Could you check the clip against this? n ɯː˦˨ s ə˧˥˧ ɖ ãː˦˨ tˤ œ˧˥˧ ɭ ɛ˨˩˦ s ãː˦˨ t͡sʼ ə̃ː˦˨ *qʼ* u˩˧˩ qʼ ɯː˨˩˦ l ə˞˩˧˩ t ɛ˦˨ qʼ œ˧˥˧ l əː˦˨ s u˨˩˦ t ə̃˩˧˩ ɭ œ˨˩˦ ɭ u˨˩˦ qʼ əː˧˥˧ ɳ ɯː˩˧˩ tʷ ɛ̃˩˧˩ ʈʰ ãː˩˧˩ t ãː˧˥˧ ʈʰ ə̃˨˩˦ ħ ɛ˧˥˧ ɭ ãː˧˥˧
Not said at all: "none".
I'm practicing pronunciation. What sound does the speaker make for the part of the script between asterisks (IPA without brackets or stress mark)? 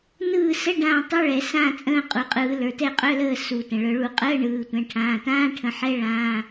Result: qʼ